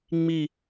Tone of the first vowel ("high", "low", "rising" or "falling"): falling